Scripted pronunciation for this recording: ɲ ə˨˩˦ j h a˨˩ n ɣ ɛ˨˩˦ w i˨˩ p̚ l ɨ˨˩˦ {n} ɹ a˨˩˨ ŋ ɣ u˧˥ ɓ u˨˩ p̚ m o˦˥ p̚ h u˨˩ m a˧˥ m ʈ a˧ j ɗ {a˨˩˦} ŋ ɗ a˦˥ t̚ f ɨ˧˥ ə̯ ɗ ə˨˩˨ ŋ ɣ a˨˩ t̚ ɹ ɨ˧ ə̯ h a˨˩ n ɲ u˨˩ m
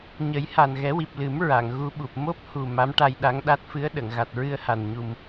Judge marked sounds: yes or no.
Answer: no, no

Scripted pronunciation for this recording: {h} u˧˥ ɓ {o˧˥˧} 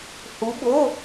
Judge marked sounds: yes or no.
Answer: yes, yes

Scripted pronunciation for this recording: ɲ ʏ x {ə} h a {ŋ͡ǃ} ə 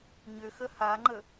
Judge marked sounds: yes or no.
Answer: yes, yes

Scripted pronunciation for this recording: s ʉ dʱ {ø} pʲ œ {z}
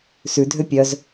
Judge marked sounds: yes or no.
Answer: yes, yes

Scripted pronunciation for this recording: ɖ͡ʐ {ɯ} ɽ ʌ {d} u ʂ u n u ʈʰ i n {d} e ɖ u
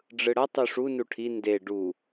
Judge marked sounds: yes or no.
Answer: yes, no, yes

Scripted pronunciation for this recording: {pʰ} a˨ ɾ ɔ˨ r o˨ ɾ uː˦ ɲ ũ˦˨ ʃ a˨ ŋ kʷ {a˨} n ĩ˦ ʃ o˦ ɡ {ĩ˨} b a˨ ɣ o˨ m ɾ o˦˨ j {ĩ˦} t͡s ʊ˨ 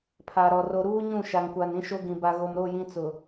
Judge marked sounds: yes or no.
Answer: yes, yes, yes, yes

